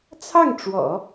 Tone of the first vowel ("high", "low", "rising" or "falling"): falling